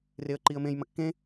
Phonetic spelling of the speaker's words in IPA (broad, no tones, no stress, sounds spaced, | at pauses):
r e ə̯ ǃ i ə̯ m ẽ j m ɐ kː ẽ